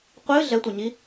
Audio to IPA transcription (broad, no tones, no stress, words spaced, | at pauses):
qʷɨ ɮɛtʷɘɲi